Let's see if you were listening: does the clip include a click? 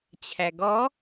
no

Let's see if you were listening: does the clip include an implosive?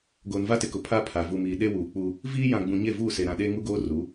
yes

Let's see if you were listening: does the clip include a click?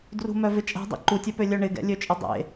yes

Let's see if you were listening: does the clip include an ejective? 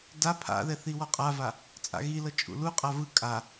yes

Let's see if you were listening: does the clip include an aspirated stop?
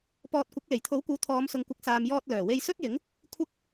yes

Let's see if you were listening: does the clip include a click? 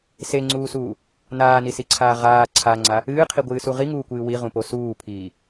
yes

